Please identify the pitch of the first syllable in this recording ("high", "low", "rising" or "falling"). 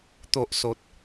low